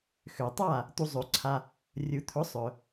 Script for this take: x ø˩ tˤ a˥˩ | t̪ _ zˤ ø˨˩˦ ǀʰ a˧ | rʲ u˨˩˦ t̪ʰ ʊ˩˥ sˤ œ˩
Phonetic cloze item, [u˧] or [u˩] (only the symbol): u˧